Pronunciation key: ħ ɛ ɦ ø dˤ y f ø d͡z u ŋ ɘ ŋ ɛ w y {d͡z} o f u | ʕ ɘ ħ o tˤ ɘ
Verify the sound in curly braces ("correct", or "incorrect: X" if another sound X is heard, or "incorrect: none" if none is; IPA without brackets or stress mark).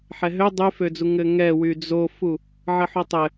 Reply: correct